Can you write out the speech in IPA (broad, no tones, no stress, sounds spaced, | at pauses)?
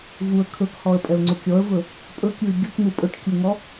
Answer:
v u ə̯ kʰ ɵ k h ɔ ə̯ pʼ ɛ ʊ̯ ŋ͡ǀ u kʲ ɔ ə̯ v ɵ | pʼ ɵ kʲ u ɪ̯ ɡʲ u k n̪ u pʼ ɵ ʈ kʲ u ŋ ɔ